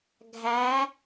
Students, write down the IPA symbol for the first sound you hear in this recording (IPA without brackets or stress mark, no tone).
ɡʱ